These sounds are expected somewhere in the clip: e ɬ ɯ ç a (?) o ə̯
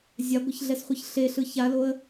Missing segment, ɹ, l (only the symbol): l